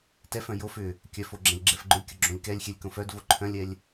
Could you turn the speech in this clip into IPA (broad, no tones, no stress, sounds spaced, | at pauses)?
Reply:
t ɛ f œ̃ j o f ʏ | kʲ œ f o ɡ͡ǁ ɛ̃ lʲ ɡ͡ǁ ɛ f ɡ͡ǃ ʊ lʲ kʲ ʊ ɡ͡ǁ õ lʲ k ɛ lʲ xʲ ɛ lʲ k õ f œ d v o ǃʰ œ̃ lʲ ɛ lʲ